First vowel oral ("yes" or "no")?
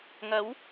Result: yes